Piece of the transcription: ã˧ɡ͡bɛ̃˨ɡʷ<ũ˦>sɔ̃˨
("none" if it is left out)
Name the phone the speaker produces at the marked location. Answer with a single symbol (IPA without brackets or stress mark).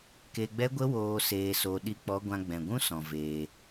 ũ˦